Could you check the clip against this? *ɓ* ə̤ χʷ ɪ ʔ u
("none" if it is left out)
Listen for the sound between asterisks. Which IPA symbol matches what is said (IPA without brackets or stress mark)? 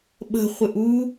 ɓ